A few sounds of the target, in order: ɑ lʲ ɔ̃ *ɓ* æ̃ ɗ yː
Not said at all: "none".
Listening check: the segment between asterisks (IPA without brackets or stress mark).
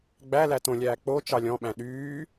ɓ